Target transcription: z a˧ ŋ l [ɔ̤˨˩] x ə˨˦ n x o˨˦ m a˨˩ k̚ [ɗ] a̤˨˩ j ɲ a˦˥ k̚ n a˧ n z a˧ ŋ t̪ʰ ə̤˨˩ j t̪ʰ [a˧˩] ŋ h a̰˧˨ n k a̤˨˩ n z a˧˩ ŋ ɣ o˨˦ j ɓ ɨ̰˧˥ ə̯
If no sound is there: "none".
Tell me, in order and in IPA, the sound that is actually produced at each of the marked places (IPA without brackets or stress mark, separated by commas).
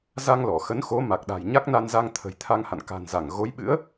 ɔ˧˩, ɗ, a˧